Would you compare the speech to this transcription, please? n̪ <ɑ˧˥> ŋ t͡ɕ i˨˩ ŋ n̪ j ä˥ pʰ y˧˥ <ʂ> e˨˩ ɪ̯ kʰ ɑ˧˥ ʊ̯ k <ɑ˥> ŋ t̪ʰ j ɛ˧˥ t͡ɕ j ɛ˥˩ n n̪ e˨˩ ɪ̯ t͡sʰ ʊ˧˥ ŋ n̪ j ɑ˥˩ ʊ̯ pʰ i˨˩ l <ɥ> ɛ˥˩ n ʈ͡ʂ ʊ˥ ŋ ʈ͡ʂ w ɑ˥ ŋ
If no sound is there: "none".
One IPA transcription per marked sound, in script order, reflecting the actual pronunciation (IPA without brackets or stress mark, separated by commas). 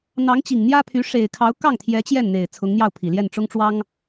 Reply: ɑ˧˥, ʂ, ɑ˥˩, j